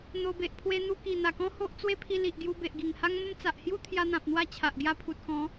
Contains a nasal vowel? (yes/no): yes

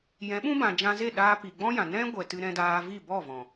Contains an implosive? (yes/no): yes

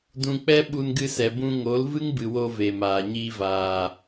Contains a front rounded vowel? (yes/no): no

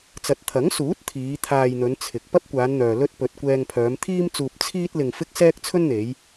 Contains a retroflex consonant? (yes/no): no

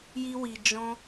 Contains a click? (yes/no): no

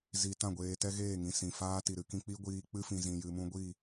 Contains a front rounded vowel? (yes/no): no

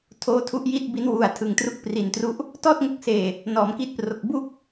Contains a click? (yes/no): no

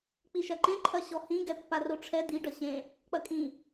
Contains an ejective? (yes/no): yes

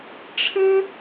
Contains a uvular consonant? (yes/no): no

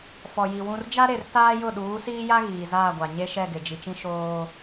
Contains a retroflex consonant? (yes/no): no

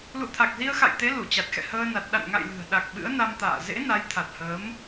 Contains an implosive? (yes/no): yes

